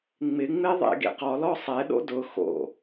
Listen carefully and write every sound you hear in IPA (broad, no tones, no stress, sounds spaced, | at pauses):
ŋ͡m ɪ ŋ͡m e ðˤ ḛ ɡ ḛ q ɔ l ɔ sˤ ɛ ɗ o̰ d ʊ x o̰